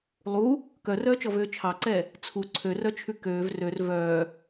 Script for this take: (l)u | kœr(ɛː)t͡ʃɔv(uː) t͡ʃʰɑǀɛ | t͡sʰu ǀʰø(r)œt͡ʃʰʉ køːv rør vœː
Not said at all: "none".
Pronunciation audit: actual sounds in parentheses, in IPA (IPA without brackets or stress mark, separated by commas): lˠ, œː, øː, r